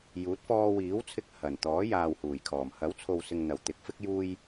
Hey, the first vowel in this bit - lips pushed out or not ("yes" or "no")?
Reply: yes